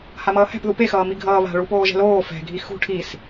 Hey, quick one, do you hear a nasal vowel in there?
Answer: no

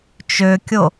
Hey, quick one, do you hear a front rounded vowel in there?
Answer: yes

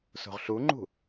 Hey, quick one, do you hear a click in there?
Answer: yes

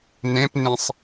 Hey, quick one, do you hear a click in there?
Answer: no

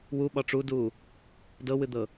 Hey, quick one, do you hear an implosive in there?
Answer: yes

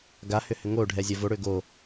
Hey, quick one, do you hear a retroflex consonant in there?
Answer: yes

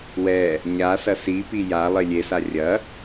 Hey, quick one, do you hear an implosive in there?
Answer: no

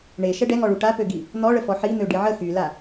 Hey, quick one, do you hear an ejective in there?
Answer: no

